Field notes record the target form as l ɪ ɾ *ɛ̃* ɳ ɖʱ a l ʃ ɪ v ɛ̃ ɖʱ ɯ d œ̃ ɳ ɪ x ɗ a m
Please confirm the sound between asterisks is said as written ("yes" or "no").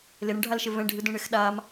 no